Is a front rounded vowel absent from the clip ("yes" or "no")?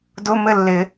yes